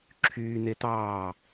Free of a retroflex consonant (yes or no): yes